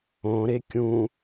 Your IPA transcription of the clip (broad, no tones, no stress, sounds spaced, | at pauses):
õ ɾ e kʲ ũ